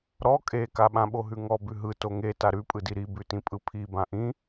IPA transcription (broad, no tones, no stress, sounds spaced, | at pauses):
ɾ ɔ kʼ e k a ɓ ã ɓ o ɦ ʉ ŋ ɔ b ʉ ɦ ɯ t o ŋ e t a ɾ ʉ pʼ ɯ d i ɾ i b ʉ t ĩ pʼ ɯ pʰ i b ã ʔ ĩ